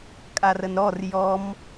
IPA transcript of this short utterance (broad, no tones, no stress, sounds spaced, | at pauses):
kʼ a r ə n ɾ ɔ r j ɔ m